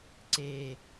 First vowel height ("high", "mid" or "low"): mid